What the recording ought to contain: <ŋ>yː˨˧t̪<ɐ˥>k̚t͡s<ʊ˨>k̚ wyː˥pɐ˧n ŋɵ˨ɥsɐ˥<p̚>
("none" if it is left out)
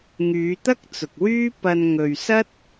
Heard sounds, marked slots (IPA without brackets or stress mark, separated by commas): ŋ, ɐ˥, ʊ˨, t̚